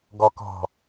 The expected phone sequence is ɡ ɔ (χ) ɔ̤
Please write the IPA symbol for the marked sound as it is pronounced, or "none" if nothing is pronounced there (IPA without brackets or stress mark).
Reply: k